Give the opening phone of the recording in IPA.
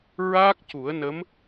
ɹ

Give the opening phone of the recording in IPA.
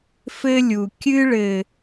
f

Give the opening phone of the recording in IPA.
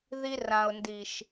ð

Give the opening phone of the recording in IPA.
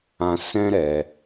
ã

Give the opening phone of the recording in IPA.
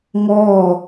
ŋ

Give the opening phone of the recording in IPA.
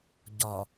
ɟ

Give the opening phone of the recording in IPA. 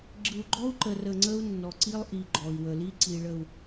ɡ͡ǁ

